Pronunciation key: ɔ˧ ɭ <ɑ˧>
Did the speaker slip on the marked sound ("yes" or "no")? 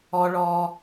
yes